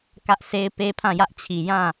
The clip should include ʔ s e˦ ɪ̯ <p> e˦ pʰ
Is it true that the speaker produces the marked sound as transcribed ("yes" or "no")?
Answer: yes